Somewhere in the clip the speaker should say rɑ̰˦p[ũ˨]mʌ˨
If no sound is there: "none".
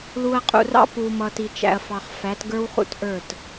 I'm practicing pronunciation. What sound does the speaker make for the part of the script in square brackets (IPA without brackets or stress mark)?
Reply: u˨